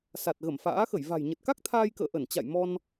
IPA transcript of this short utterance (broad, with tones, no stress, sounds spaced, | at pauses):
s a˨˩ t̚ ɣ ə˧˩ m f a̰ː˧˥ x ə˧˩ j v a̤˨˩ j ɲ ə˨˩ t̚ k a˦˥ k̚ t̪ʰ aː˧ j k ə̰ː˧˨ ʔ ə˧˩ n t͡ɕ a̰˧˨ j m ɔ˧ n